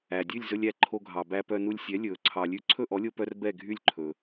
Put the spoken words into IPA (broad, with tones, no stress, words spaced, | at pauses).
æ˩ dʲʉ˥˩lʲzɵ˧lʲ æ˧ǃʰo˧ɡʱɑ˩ bæ˧pœ˧nu˧lʲ sʲɛ˩˥lʲɵː˩ ǀʰɑ˩lʲʉ˧ ǀʰɵ˥˩ʔɔ˩˥lʲo˧pœ˧r bɛ˥˩ɡʱy˥˩lʲǃʰɵː˩